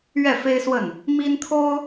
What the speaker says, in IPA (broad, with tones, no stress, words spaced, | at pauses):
ɥɛ˥˩fe˥ɪ̯swə˥˩n | mi˥nt̪ʰo˥ʊ̯